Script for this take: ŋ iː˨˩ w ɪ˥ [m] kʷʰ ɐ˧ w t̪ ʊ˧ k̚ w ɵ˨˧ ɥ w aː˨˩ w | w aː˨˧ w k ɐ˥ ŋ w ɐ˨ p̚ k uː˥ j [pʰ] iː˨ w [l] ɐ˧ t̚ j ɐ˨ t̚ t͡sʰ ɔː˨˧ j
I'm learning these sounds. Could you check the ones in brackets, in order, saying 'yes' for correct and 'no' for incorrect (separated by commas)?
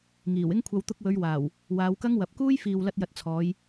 no, no, yes